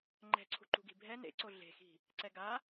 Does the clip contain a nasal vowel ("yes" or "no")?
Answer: no